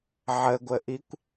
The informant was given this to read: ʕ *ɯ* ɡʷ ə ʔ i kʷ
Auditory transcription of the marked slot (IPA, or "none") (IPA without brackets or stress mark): ə